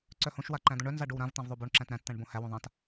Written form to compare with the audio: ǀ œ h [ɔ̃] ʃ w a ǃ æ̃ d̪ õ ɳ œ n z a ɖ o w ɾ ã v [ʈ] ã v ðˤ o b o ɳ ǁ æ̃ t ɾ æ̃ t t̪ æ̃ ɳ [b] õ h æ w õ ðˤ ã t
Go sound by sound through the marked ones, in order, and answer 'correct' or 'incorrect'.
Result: incorrect: õ, incorrect: t̪, correct

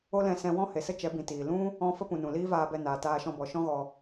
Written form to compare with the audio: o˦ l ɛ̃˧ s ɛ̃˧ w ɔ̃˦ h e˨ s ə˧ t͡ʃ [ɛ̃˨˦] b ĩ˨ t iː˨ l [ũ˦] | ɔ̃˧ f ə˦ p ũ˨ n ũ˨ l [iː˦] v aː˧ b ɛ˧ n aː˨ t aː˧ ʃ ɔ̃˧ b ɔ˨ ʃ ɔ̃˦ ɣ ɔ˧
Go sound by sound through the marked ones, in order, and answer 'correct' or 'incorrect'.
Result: incorrect: ɛ˨˦, correct, correct

